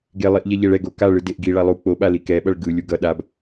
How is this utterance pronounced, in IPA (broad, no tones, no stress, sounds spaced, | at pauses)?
ɡ e lˠ i ʔ ʎ ɛ ʎ ɛ ɭ ɛ ɡ o k a ɭ ɯ d e ʔ ɡ i ɭ a lˠ u k͡p o ɓ a l i k ɛ ɓ ʌ ɭ ɡ ɯ lʲ u ɡ ʌ ɗ a b